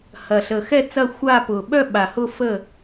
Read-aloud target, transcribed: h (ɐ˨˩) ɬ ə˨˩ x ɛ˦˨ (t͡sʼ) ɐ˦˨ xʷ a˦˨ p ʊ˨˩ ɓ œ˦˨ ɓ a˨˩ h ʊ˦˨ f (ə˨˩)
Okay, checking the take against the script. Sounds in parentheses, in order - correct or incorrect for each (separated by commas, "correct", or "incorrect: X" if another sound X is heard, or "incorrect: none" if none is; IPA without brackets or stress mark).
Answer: correct, incorrect: t͡s, incorrect: ə˦˨